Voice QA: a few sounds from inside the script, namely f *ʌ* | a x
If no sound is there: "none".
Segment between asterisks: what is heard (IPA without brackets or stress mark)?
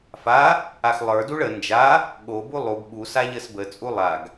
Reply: a